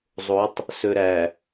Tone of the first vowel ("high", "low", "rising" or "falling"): rising